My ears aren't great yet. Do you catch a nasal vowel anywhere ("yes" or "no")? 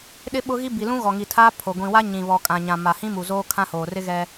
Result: yes